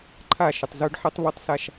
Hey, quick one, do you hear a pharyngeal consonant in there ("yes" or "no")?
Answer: yes